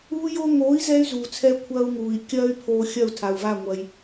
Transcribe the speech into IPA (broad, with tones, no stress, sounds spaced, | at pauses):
uː˧ j o˧ ŋ oː˨˦ i̯ z ɛː˧ y̯ z uː˨ t͡sʰ ɛ˧ kʷʰ ɐː˧ u̯ ŋ uː˨ i̯ kʲ ɐː˦ y̯ pʰ oː˧ xʲ ɐ˦˨ u̯ tʰ a˨ u̯ v a˦˨ ŋʷ ɐ˧ j